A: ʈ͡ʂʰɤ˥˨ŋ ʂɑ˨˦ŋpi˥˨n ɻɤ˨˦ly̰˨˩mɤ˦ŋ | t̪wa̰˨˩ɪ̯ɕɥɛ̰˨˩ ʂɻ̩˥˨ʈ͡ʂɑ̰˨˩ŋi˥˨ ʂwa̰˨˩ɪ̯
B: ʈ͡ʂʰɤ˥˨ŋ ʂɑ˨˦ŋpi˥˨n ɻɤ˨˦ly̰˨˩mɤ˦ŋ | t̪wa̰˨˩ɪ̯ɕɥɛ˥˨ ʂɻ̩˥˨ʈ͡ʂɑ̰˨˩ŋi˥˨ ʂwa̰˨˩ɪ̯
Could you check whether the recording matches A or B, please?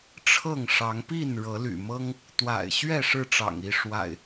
B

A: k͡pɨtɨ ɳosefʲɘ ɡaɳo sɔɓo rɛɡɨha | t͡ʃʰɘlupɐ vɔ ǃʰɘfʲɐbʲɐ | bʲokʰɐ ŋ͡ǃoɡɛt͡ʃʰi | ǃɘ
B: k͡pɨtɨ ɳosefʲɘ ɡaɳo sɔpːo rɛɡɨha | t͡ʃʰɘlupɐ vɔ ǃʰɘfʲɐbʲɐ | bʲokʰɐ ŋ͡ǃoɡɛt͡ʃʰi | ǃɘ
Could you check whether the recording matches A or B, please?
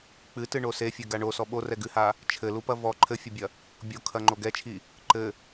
A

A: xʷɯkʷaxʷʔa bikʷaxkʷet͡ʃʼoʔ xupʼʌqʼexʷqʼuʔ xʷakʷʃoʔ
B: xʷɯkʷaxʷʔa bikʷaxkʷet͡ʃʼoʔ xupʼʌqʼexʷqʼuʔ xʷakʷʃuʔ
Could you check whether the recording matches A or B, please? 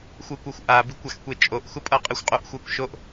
A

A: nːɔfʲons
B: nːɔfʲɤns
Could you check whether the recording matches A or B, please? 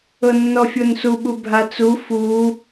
A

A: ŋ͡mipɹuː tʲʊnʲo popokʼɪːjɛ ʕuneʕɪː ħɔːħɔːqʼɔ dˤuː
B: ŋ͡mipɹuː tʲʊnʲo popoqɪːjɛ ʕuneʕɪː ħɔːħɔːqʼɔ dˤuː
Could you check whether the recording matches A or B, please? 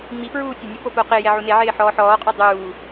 B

